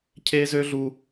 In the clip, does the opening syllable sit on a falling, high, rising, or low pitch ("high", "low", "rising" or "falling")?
high